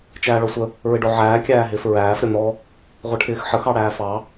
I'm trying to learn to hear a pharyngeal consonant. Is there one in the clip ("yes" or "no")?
yes